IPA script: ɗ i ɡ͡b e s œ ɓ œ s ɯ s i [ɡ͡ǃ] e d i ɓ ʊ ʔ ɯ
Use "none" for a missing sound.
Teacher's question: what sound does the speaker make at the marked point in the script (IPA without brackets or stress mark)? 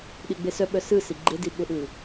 ɡ͡ǃ